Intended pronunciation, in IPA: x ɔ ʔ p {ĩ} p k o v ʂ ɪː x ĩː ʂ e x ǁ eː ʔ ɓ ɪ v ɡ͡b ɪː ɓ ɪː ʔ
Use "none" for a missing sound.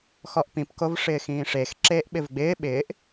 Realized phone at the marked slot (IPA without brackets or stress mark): ĩ